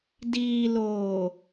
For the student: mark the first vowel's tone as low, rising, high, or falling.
low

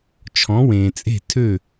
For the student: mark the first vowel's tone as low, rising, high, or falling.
rising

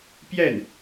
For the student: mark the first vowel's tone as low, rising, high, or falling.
falling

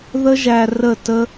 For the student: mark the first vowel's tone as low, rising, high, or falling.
high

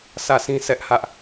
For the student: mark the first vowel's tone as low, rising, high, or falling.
falling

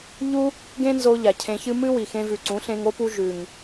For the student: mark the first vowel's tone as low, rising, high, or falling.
high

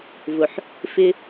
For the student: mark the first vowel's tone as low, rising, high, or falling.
low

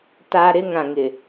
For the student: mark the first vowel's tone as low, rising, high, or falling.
high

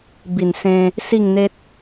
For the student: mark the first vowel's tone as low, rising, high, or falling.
low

